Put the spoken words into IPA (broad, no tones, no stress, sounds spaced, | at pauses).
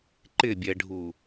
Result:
ǃ ɪ bʲ ɛ ɖʱ u